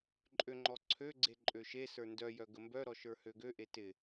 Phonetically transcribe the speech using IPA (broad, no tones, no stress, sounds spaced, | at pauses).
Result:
ǃʼ ø ŋ͡ǃ ɔ ǀʰ ø ɡ͡ǀ e ǃʼ ø ʃ e s ə˞ n d œ j œ ɡ ə m b œ ɾ ɔ ʃ ə˞ h ø ɡ ø ʔ e t ɪ